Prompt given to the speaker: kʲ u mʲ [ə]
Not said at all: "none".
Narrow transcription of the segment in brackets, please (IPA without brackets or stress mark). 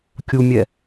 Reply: ɛ